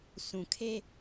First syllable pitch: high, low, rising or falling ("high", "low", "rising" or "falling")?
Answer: low